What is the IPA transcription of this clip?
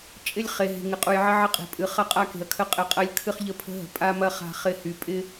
t͡ʃʼ ɪ˦ lʲ χ e˨ ɦ e̤˨ ŋ ɪ˨ qʼ u˨ j ʕ ɪ˦ ʕ ɪ˦ qʼ e̤˨ pʼ ɨ˨ χ ɐ˦ qʼ a˦ k e̤˨ ɐ̯ kʰ ə˦ qʼ ɪ˨ qʼ ɐ˦ lʲ kʰ ɨ˦ χ ʎ ə˦˨ pʰ ə̤˦ ɦ ə̤˨ pʼ a˦ m ɐ˦ χ a̤˦ χ ɪ˦˨ h y˨ pʼ ɪ˦

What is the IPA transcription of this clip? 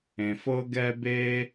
ẽ˩ f ɤ˥ ɡ ɛ˥ b e˥

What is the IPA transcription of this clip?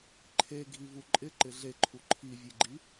ǃʰ e ɡʱ i v u ǃʼ ɪ ǃ ɪ ɮ e ǃʰ u ǃʰ i vʲ e ɡ͡ǃ i

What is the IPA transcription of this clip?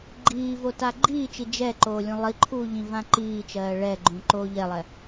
ɡ͡ǃ iː v o t a ɡ͡ǃ iː t͡ʃ i d͡ʒ ɛ ǃ oː lʲ ũ lˠ i ǃʰ uː ʎ ĩ v ã ǃ iː t͡ʃ ɜː ɭ ɛ ɡ͡ǃ ũ ǃ oː ʎ ɛ lˠ ɛ

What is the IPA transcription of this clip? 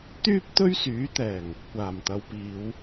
t̪ yː˥ p̚ t̪ ɵ˥ ɥ s yː˨˥ t̪ ɛː˨˩ ŋ | kʷ aː˨˩ m t̪ ɐ˨˧ w p iː˨˧ w

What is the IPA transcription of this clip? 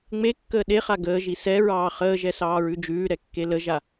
ŋ͡m e kː əː ɗ e χ a ɡ əː ʒ i s ɛ ɹ ɑː χ əː ʒ ɛ s ɑː ɹ ʉ d͡ʒ ʉː ɾ ɛ kː e l ə ʒ a

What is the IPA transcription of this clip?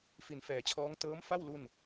f i˩˦ n f ɛː˩˦ t͡ɕʰ ɔː˦˥ ŋ t ɤː˦˥ m f a˥˩ w l u˥˩ n

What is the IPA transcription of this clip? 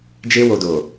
d͡ʒ e˧ w o˨ d o˨

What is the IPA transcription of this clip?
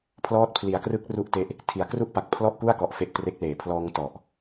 pʰ l ɔː˦˥ t̚ pʰ l i˩˦ a̯ k r ɯ˦˥ k̚ r u˥˩ ʔ t e˥˩ ʔ | tʰ i˩˦ a̯ k r u˥˩ ʔ p a˨˩ k̚ pʰ l ɔ˥˩ ʔ k u˥˩ a̯ k ɔ˨˩ ʔ f e˦˥ ʔ t r e˦˥ k̚ l eː˩˦ pʰ l ɔː˧ ŋ t ɔ˨˩ ʔ

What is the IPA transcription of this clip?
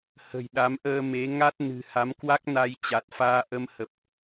h ə̤˨˩ j ɗ a˨˦ m ʔ əː˧ m e˨˦ ŋ a˦˥ t̚ n ɨ̤˨˩ h a˨˦ m k w a˦˥ k̚ n a˧ j t͡ɕ a˨˩ t̚ f aː˧ ʔ ə˧ m h ə˨˩ p̚

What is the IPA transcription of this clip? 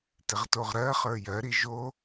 t ɪ ʁ t o ʁ ɾ ɜ χ ə˞ j ɜ ɾ i ʒ o

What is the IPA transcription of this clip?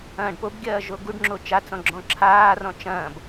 ɐ̃ː ɖ p o b ɡʲ ɐː ʒ o ɡ u ɖ ŋ͡ǁ o t͡ʃ a t͡s ɔ̃ ɡ͡ǁ ɔ̃ ǁʰ aː r ɔ̃ t͡ʃ ɐ̃ː b

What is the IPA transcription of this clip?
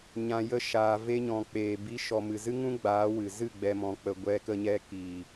ɲ ã˨ j ə˧ ʃ aː˨ v e˧ ɲ ɔ̃˨ k͡p eː˨ b i˨˦ ʃ ɔ˨ m ɨ˨ z ɨ˦ ŋ ũ˦ ɡ͡b aː˨˦ w ɨ˨ z ɨ˦˨ ɡ͡b ɛ˧ m ɔ̃˧ k͡p ə˧ ɡʷ ɛ˧ k ə˧ ɲ ɛ˧ k iː˨

